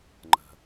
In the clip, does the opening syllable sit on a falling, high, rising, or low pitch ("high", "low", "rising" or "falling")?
low